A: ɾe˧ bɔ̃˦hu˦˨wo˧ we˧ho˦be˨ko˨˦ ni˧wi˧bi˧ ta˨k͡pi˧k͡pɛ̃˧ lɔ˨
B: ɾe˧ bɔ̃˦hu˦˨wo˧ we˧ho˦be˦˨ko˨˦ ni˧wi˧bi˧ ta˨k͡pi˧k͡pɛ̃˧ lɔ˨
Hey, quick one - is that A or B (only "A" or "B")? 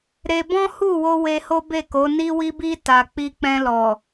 B